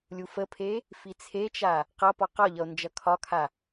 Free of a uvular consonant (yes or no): no